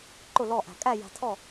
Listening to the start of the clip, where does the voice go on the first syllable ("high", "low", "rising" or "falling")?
falling